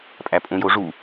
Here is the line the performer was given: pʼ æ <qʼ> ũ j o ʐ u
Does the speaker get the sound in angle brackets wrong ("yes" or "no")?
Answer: yes